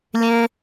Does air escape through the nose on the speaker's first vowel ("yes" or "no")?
yes